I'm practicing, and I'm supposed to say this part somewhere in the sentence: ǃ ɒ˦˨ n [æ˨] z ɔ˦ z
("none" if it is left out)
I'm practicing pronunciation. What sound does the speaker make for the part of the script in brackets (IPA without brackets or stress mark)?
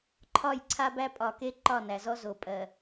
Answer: æ˨